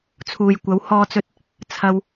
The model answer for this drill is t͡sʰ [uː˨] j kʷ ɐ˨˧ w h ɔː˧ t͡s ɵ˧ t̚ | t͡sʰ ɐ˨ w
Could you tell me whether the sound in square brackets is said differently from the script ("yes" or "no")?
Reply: no